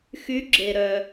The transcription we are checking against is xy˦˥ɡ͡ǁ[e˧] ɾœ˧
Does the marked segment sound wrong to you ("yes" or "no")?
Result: no